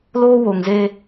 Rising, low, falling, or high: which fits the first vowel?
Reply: high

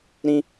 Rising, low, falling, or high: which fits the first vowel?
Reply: high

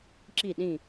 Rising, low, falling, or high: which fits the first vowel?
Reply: falling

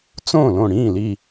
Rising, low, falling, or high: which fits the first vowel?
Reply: falling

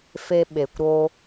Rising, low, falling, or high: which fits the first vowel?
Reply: high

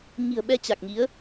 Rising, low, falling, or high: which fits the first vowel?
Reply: low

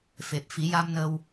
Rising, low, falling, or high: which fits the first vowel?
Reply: low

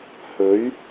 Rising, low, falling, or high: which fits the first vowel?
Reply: rising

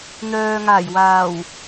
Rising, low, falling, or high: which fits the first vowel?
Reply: low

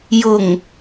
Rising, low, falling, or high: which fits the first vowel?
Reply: low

